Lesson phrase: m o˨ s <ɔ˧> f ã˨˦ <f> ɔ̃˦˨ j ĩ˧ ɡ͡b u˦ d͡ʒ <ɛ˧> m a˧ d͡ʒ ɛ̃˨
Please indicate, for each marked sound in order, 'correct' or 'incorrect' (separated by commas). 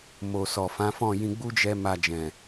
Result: incorrect, correct, correct